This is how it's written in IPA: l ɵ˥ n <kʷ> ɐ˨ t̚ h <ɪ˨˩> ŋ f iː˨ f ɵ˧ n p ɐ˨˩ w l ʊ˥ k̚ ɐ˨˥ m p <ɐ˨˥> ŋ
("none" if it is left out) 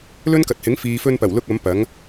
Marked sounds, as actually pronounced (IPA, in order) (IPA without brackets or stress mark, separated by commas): k, ɪ˨˥, ɐ˨˥